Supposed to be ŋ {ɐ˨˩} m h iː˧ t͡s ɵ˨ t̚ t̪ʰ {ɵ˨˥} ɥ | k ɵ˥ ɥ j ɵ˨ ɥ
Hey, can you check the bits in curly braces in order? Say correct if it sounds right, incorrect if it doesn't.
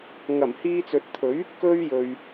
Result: correct, correct

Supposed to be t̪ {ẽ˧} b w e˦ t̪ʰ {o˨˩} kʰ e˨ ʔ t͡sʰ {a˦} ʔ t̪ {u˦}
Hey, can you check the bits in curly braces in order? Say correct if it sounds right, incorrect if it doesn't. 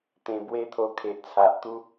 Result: correct, incorrect: o˧, incorrect: a˨, correct

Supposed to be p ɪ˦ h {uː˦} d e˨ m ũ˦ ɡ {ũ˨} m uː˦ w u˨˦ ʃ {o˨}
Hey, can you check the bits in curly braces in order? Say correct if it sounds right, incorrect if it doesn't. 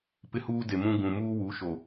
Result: correct, correct, correct

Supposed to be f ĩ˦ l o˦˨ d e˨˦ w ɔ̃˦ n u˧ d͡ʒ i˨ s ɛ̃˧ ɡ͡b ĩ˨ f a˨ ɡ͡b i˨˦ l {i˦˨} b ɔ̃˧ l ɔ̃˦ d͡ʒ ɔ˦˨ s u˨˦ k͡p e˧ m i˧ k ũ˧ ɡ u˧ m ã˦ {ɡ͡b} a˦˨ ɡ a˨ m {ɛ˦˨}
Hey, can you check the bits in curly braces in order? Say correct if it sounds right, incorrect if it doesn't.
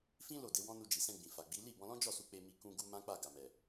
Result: correct, incorrect: k͡p, incorrect: ɛ˨

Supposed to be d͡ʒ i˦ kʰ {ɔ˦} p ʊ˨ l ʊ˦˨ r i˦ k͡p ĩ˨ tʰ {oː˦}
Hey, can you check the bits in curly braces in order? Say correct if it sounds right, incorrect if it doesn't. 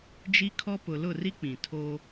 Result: correct, correct

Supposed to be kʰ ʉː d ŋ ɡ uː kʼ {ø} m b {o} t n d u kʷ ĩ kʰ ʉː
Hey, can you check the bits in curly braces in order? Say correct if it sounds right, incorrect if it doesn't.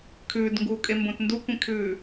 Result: incorrect: e, incorrect: õ

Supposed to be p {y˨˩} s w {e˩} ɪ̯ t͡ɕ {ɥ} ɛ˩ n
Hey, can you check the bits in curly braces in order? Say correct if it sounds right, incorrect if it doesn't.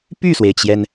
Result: incorrect: y˥˩, correct, incorrect: j

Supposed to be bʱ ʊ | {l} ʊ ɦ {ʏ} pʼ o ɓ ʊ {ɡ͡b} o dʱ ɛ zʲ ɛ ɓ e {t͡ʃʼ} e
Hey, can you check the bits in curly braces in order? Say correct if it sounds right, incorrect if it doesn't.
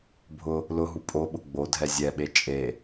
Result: correct, incorrect: u, correct, correct

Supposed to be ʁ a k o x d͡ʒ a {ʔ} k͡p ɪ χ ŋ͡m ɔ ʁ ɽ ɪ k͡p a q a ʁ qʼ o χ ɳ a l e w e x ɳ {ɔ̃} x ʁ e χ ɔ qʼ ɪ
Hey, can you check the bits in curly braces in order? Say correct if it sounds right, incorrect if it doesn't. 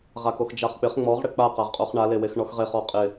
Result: incorrect: χ, incorrect: ɔ

